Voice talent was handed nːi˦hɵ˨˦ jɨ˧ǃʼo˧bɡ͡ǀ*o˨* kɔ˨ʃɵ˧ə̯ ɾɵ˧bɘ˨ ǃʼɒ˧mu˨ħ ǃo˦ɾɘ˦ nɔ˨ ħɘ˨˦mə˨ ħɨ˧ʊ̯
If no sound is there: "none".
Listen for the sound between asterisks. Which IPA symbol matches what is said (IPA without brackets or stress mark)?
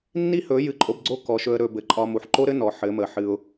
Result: o˦